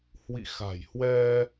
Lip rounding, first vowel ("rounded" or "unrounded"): unrounded